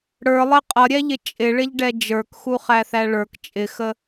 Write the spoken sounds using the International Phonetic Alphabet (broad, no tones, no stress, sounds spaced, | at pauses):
ɽ ə˞ lˠ ɪ qʼ ʌ ɾʲ ɛ ʎ ɪ t͡ʃʼ ɪ ɭ ɪ ʎ ɖ ɛ d͡ʒ ə˞ k x u χ æ θ æ ɭ ə˞ k t͡ʃʼ ɪ x ə